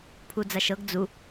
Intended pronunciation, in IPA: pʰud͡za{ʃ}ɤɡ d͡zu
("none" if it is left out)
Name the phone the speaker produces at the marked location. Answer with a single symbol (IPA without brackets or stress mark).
ʃ